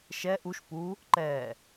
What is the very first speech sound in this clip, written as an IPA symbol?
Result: ʃ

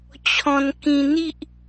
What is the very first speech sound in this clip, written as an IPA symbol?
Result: t͡ɕʰ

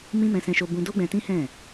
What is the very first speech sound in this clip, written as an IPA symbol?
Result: m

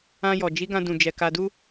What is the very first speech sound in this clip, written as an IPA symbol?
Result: ã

